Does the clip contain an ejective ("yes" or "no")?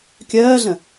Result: no